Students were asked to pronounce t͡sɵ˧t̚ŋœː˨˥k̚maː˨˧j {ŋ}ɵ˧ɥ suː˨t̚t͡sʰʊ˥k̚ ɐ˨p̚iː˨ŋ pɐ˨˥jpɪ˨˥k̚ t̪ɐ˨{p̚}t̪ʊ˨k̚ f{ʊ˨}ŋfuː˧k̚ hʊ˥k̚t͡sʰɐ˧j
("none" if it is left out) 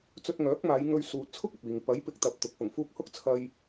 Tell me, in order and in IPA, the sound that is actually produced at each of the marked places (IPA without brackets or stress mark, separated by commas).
ŋ, p̚, ʊ˨˩